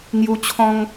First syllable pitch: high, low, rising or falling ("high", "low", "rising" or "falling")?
high